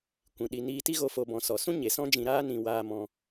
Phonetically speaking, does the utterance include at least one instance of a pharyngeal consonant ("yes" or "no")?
no